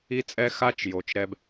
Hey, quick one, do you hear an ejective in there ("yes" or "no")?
yes